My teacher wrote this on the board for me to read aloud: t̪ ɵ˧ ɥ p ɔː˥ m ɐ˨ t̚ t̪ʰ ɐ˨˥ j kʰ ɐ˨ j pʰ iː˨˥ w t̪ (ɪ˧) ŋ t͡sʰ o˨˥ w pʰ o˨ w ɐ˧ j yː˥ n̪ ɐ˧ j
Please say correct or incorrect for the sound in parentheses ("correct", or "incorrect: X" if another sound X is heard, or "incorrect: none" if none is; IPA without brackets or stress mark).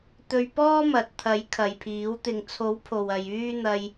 incorrect: ɪ˨